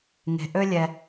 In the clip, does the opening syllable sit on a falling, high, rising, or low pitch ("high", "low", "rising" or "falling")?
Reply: low